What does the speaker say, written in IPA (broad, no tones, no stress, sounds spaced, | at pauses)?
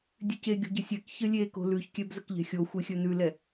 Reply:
dʲ ʉ c e ɡʲ o̤ ɟ ə sʲ ɛ k ç ə lʲ e k o̤ l ʉ ç kʲ ɛ b z ə k ʎ ɛ̤ xʲ o xʷ e xʲ ɵ n ʉ l ɛ